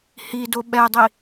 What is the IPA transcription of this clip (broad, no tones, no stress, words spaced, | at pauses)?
hido ɓɛdˤi